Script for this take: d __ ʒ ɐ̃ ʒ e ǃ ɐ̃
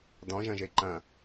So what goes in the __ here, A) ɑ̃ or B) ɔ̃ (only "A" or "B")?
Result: B